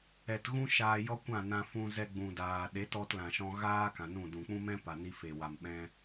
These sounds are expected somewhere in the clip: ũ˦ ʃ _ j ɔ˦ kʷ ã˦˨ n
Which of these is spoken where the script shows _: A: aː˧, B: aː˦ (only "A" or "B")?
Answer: A